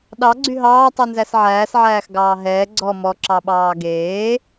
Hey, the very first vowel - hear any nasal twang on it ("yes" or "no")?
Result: no